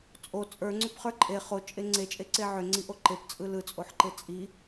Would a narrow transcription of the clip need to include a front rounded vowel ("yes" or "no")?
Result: yes